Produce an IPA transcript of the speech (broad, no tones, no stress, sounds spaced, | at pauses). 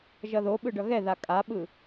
ʒ ʌ ð o ɓ ɯ ɖ ʌ ɣ ɛ ð a kʼ a ɓ ɯ